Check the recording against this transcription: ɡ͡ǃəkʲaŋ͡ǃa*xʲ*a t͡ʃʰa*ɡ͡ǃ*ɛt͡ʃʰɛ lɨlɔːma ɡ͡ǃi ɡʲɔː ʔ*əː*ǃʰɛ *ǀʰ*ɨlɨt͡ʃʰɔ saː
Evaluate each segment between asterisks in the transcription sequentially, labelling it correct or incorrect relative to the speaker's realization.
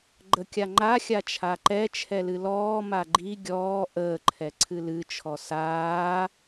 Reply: correct, incorrect, correct, correct

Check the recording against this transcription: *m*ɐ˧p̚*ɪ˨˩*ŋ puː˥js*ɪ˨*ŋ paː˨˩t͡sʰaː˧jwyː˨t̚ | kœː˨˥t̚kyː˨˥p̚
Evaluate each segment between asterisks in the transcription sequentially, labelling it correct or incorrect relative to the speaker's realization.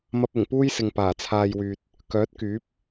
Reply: correct, correct, correct

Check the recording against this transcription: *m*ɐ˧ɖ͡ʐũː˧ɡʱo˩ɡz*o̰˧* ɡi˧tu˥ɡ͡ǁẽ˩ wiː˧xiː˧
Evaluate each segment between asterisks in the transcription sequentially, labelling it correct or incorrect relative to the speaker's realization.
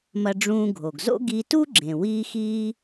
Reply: correct, incorrect

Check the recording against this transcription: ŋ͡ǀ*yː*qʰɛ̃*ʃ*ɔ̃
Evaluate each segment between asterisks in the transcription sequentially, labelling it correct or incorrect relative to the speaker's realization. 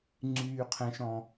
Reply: correct, correct

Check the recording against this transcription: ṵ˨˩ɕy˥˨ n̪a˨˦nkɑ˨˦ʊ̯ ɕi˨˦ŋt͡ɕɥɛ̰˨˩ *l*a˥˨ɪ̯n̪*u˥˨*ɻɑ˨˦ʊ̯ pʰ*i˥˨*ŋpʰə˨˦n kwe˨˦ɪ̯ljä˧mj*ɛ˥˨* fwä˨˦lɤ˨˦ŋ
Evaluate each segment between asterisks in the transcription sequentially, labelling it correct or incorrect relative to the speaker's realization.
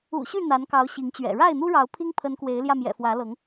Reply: incorrect, incorrect, incorrect, incorrect

